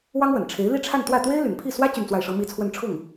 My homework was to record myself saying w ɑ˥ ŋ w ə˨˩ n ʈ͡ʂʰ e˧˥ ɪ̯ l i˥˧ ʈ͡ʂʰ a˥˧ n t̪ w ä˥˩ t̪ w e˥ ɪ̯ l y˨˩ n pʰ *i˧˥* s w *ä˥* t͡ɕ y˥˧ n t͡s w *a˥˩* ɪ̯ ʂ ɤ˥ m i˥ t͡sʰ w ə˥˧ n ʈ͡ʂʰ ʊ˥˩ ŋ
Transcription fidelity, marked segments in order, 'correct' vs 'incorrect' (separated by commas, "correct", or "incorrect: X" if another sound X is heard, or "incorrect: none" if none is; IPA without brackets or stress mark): incorrect: i˥˩, correct, correct